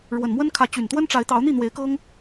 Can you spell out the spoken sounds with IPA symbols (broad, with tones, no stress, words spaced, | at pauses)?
ɻwə˨˩nmwə˦nkʰä˨˦ t͡ɕy˨˩nt̪wə˦nʈ͡ʂa˨˦ɪ̯t̪ɑ˨˦ʊ̯ n̪i˥˨n̪we˨˦ɪ̯kɤ˦ŋ